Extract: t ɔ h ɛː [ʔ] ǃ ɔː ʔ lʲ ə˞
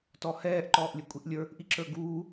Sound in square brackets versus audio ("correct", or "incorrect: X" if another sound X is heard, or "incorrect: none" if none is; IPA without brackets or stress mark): correct